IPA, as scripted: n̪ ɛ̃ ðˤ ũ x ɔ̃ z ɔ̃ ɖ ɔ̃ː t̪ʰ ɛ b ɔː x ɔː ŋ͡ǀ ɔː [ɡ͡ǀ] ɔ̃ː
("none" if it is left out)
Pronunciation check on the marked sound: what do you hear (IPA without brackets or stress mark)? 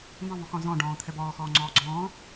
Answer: ɡ͡ǀ